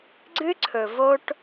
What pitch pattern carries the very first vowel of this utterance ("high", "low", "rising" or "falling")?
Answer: high